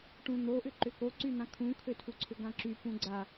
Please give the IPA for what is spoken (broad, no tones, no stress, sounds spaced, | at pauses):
ʈ ũ n̪ o ʔ ʏ ǃ ʏ k o ǀ y n̪ ã kʰ ũ kʰ ø tʰ u ǀʰ ʏ ɡ ã ǁ y p ũ ɡ͡ǀ a